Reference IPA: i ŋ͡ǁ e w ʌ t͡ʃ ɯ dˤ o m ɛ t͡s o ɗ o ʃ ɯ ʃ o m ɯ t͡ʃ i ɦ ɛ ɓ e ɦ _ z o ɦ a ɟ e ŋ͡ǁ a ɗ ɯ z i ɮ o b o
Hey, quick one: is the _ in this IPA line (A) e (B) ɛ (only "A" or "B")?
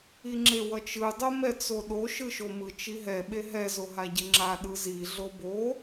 B